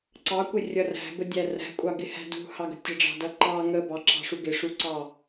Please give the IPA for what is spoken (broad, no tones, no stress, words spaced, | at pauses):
ǀɑkʷɪrʲʌ ræ̤bədʲæ ræ̤kʷʼɑɡɪhæ̤ dṳhɑɡə̤ tʲəɖ͡ʐɑ̤dʌ ǃɑ ŋə bɑǁɑ̤ʂu ɡɪʂuǀɑ